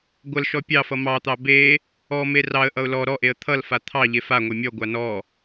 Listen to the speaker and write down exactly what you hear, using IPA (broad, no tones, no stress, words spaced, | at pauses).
ɡʷʌlʃɔ pʲɑfʌ mɑt̪ɑ be | ɔme rɑə̯ʔʌʊ̯ lɔ ɾɔʔeə̯ t̪ʰʌlfa t̪ʰɑ ʎefaŋʷe mʲɔɡʷa nɔ